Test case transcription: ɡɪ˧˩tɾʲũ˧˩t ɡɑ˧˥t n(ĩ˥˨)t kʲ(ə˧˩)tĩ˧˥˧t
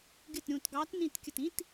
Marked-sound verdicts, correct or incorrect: incorrect, correct

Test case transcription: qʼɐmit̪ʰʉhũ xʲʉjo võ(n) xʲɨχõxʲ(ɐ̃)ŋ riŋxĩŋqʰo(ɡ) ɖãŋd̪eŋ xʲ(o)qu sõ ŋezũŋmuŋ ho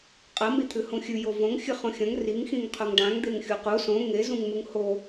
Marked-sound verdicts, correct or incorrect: incorrect, correct, incorrect, incorrect

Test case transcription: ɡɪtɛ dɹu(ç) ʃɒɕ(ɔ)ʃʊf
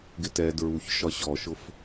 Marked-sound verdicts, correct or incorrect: correct, correct

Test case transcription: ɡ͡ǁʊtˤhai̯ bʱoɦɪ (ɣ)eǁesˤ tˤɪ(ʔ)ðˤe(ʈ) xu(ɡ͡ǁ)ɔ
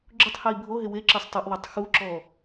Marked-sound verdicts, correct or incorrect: incorrect, correct, incorrect, incorrect

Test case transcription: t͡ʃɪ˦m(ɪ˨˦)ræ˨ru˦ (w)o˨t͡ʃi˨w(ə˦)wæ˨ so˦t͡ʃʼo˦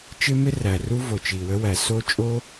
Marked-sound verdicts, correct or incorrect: incorrect, incorrect, correct

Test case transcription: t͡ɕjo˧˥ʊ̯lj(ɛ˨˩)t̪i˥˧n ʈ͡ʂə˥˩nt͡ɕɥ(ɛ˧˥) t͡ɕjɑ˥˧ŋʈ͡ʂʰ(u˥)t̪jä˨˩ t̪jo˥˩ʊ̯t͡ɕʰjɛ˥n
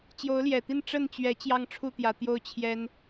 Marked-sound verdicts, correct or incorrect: correct, correct, incorrect

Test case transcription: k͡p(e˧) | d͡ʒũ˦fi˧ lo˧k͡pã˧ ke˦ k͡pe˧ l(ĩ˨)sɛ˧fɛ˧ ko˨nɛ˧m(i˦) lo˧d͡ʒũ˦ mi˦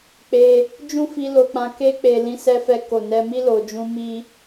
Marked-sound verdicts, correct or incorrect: correct, incorrect, correct

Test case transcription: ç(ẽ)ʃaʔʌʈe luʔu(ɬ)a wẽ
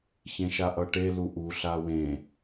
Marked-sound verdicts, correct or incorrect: correct, correct

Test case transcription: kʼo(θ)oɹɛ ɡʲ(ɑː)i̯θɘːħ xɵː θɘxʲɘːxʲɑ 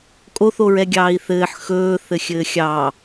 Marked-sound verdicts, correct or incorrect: correct, correct

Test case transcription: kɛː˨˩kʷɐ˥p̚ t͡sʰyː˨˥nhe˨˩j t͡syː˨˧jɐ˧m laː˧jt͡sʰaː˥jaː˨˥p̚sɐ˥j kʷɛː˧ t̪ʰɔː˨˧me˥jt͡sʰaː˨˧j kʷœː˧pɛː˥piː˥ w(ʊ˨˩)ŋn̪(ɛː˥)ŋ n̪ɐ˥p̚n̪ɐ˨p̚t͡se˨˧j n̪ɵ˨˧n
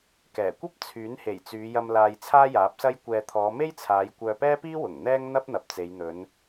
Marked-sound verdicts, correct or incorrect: correct, correct

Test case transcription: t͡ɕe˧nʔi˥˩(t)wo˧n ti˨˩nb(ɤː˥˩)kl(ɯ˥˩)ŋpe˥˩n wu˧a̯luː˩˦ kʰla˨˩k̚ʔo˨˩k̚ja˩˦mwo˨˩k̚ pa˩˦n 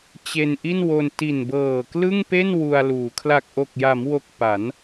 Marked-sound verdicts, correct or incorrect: incorrect, incorrect, correct

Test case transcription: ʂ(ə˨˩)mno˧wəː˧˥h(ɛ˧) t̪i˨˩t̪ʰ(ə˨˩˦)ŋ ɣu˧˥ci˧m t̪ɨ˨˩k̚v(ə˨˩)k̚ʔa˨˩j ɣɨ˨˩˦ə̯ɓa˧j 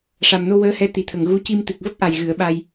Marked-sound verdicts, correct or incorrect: incorrect, incorrect, incorrect, incorrect

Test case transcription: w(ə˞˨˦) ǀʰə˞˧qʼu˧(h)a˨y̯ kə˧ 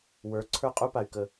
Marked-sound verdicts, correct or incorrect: correct, incorrect

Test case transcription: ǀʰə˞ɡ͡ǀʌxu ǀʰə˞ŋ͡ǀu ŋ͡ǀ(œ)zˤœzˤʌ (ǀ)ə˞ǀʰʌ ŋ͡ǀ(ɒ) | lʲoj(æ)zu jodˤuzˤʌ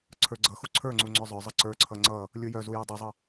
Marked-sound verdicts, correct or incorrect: correct, correct, incorrect, incorrect

